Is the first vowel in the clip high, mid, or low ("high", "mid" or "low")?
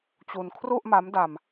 high